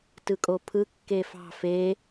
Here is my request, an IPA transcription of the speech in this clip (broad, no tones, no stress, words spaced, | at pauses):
tɯkʼopʰɯ kːefɑ̤ fe